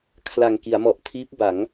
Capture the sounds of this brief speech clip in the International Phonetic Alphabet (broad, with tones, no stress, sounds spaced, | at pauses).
kʰ l a˨˩ ŋ k i˩˦ a̯ m ɔ˨˩ ʔ tʰ iː˦˥ p̚ b a˩˦ ŋ